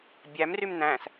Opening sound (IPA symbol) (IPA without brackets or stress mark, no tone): bʲ